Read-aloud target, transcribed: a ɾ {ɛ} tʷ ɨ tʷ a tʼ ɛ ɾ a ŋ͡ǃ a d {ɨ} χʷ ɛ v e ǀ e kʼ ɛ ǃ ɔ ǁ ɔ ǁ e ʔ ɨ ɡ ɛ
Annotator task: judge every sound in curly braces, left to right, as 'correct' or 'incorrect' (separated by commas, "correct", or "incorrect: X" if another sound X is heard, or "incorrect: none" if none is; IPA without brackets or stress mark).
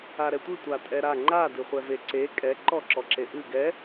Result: correct, correct